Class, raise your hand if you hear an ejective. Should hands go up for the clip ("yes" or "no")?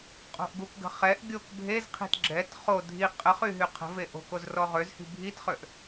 yes